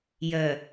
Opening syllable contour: low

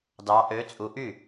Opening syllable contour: rising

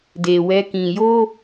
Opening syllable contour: low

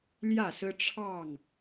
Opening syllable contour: falling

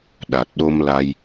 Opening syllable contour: low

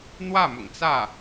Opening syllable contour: falling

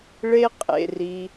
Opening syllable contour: high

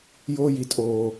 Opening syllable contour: high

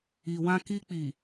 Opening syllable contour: low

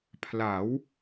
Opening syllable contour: rising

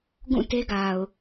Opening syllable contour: falling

